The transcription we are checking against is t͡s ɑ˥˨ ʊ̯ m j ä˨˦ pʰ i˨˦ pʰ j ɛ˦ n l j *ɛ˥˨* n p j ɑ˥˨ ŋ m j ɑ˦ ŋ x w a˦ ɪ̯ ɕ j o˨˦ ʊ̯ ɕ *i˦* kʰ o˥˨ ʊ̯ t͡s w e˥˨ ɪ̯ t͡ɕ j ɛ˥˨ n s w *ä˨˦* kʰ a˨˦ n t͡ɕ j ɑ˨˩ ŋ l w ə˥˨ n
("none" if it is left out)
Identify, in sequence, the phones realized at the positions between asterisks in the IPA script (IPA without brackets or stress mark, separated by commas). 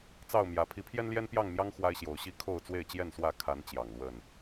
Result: ɛ˦, i˦, ä˥˨